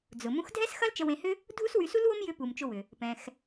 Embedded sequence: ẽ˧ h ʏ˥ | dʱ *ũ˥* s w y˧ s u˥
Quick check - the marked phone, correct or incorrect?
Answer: incorrect